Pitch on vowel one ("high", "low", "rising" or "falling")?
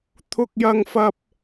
high